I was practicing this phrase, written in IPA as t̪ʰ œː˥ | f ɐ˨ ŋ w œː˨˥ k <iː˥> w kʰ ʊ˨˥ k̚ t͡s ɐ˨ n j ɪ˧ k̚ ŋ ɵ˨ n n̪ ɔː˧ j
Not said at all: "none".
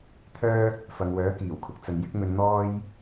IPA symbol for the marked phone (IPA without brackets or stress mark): iː˨˩